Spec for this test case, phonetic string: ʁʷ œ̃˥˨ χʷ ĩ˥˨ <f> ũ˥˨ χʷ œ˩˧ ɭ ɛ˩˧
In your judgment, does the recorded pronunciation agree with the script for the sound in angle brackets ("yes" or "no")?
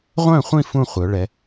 yes